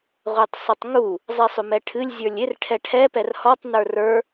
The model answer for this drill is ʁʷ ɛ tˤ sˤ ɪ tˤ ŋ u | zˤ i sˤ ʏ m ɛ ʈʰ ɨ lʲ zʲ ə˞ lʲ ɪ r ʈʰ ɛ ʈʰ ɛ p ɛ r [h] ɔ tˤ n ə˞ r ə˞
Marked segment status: correct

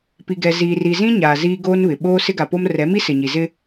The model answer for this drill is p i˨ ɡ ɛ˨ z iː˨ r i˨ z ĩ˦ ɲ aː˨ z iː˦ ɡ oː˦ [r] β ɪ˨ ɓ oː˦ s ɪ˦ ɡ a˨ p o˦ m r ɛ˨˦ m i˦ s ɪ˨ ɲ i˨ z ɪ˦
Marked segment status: incorrect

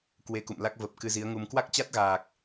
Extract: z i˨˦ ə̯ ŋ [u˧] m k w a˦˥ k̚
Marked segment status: correct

